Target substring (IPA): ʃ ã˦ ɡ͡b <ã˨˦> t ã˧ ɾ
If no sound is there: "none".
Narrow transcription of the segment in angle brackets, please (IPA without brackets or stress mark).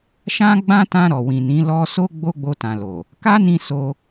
ã˦